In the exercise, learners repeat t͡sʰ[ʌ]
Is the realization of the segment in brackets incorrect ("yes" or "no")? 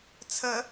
yes